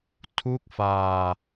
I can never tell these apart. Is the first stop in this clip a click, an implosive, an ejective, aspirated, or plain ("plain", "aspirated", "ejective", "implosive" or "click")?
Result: aspirated